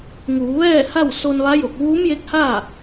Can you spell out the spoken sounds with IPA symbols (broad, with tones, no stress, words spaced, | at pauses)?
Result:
ŋuː˩˧ʋɛː˥˨ha˥˨w so˧nʋa˧˥jo˧˩k̚ ʋuː˧˥mje˧˥k̚haː˥˨